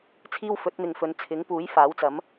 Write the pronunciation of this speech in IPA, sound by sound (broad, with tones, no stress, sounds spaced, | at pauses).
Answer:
t͡sʰ iː˥ w f ɵ˨˥ t̚ n̪ ɪ˨ ŋ f ɵ˨˧ n t͡sʰ ɪ˨˥ ŋ p uː˨˥ j f aː˨˥ w t͡s ɐ˨˥ m